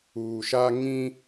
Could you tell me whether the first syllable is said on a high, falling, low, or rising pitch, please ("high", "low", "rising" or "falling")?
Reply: low